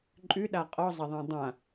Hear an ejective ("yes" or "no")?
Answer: yes